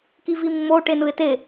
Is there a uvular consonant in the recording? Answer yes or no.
no